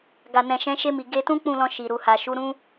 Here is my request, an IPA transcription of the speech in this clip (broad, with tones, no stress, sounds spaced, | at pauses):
ɡ a˨ n ɛ̃˨ ʃ ɛ̃˨˦ ʃ e˧ m i˨ ɡ e˧ t ũ˦ k͡p ũ˦˨ l ɔ̃˧ ʃ i˨ ɾ u˨ h a˨ ʃ u˨˦ ɾ ũ˦